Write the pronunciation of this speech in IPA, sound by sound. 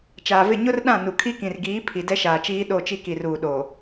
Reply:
t͡ʃaː˨vɪ˦˨ ɲʊ˦r ɗã˦˨nu˨kʰi˦kĩ˨r ɡiː˨˦pʰi˨ dɛ˦ʃaː˨t͡ʃiː˦ ɗo˦˨t͡ʃi˦ ki˨ruː˨ ɗoː˨

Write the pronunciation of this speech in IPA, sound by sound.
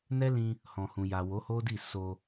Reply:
nɛ˦lĩ˧ | hɔ̃˨hũ˨ja˨ wo˨˦ho˦di˦˨ so˧

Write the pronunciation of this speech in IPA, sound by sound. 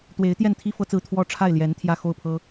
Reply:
t̪we˧˥ɪ̯t̪jɛ˥˩nt̪ʰi˥ fɤ˥t͡sɹ̩˥˩ t̪ʰwɔ˥ʈ͡ʂʰa˥˩ɪ̯ ljɛ˧˥n t̪ʰjä˥˧xo˥˩ʊ̯pʰɤ˥

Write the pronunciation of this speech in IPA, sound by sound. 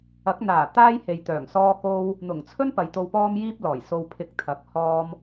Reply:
ɐ˨˥k̚n̪aː˨˩ t̪aː˥jhe˨jt̪œː˨˩ŋ sɔː˥ko˥w | n̪ʊ˨˩ŋt͡sʰɵ˥n pɐ˨jt̪o˧wpɔː˥mjiː˥p̚ lɔː˨˩j so˧wpʰɪ˧k̚t̪ʰɐ˨˥k̚ hɔː˥m

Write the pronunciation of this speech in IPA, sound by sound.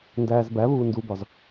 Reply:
ndæːzbæβuː ndubɒz

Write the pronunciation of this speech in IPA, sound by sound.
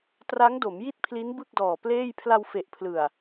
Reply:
tra˦˥ŋ do˩˦mji˥˩t̚pʰli˦˥n bɯ˥˩k̚dɔː˨˩ pleː˥˩j pʰla˧wfe˨˩ʔpʰlɯ˨˩a̯

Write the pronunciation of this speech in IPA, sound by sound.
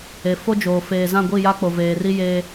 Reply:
e˨fo˦d͡ʒoː˨ feː˨zã˦˨ɡʷi˦˨ja˦ k͡po˨veː˨ri˦ jeː˦

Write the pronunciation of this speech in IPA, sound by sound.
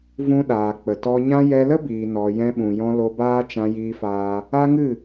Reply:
vũ˧ɗaː˨ k͡pə˨tɔ˧ɲã˦ jɛ˧lə˦biː˨nɔ˨ jɛ̃˧ɓũ˨jɔ̃˧ lo˧baː˦ t͡ʃã˧jiː˧faː˧ | a˦ŋɨ˦˨

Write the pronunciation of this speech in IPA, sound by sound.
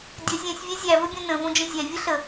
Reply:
dʲə zʲɛ̃sʲvʲɛ zʲævɵbʲõ nə̃võd͡ʒə̃ zʲɛvʲə ɬə

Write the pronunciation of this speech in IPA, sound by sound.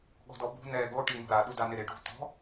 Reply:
ɠɔ̤dɔbṳ nɛːɡo ʈinɔ̤ɾa ɗudanɪɾɪ ɖṳ t̪ɔ̤

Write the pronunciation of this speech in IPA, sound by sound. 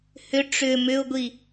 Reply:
hʏ ʈ͡ʂʏ mʏʊ̯ɡʷi

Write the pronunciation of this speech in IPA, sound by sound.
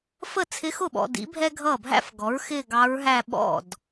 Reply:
fə˥˩t͡sʰɪ˧˥xʊ˥˩ɓɔ̰˨ dḭ˩˥bʱɛ˥ ɡʱʌː˥˩bʱæ̰˥fɡɔ˩˥ɹxɪː˥˧ ɡɑ˧˥ɹɦæ˥˧ ɓɔ̰˥˩d

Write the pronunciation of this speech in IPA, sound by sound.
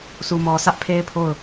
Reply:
su˨mɔ˨ sä˦ʔpʰe˦ɪ̯pʰo˦˨ʊ̯

